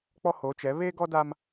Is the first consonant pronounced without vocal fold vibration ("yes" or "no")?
yes